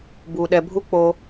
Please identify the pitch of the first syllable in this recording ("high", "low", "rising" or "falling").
low